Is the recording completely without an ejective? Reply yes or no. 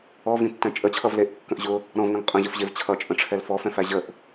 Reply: no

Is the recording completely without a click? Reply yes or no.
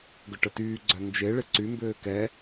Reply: no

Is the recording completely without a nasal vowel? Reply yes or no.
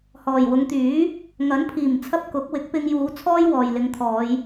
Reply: yes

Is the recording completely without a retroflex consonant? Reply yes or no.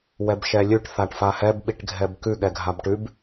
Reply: no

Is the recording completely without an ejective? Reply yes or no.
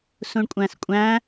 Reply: no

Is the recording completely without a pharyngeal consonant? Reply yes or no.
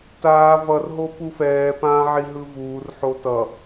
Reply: no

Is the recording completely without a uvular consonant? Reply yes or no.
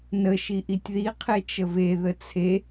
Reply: no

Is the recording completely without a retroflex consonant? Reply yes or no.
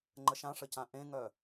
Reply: no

